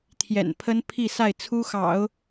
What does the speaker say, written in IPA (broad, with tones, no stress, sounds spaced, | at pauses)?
t̪ʰ j ɛ̰˨˩ n pʰ ə˥ n pʰ i˥˧ s a˥˩ ɪ̯ t͡sʰ u˥ x ɑ̰˨˩˦ ʊ̯